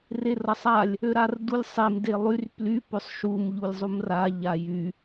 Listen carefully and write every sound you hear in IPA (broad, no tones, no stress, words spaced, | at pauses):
rerʌsˤalʲ | øɾardulʲsˤem delˠyr ply pøsˤʃum ʎulʲzˤumra ʎajy